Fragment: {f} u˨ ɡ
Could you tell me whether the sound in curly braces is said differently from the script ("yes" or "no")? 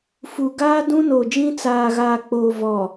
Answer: no